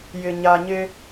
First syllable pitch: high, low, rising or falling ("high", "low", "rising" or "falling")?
low